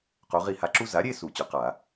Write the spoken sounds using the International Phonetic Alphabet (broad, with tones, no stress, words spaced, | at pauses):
qo˩˧ʁi˧˩˧ha˩˧ǁu˧ za˩˥ɾʲe˥˨ su˧˩˧t͡ɕʊ˩˧ qa˧˩˧